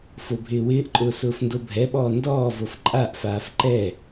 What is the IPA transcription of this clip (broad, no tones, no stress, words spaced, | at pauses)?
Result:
fobʱɪːwɪːʔǃʼʊː sʊːfndobʱɛɓɔː ndɔːvof ǃʼaʔfaːf ǃɛ